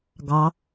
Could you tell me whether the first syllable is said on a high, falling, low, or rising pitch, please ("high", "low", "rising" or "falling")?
rising